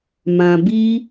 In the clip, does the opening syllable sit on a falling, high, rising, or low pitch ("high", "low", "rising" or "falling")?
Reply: low